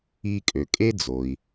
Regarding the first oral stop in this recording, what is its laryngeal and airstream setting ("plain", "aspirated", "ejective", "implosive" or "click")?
ejective